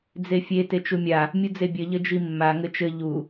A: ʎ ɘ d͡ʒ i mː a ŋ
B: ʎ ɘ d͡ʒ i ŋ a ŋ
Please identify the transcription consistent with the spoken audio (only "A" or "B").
A